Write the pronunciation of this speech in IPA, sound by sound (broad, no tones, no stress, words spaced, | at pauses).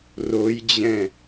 rojd͡ʑɛ̃